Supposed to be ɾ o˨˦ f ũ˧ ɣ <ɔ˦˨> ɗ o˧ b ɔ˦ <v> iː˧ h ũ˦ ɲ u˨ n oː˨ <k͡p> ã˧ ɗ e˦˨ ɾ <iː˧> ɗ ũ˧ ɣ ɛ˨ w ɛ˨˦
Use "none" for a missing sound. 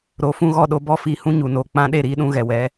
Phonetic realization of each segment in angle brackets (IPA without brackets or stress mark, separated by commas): ɔ˦˨, f, k͡p, iː˧